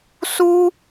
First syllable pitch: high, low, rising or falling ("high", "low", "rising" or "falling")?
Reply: high